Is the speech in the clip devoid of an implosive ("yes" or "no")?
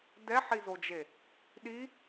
no